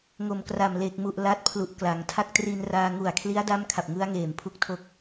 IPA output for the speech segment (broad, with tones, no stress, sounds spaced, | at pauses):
ŋ o˨˩ m k r a˨˩ m l eː˨˩ k̚ m u˨˩ ʔ l a˦˥ t̚ pʰ l u˨˩ ʔ k l a˩˦ ŋ tʰ a˥˩ k̚ t r i˧ n r aː˧ ŋ u˨˩ a̯ kʰ l i˦˥ a̯ d a˥˩ m kʰ a˨˩ p̚ ŋ ɯ˦˥ a̯ ŋ eː˨˩ m pʰ u˦˥ k̚ tʰ o˥˩ k̚